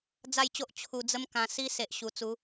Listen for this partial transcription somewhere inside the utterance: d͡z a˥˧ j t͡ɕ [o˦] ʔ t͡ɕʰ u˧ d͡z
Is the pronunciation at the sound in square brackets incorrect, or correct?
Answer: correct